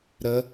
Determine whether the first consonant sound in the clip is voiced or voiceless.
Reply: voiced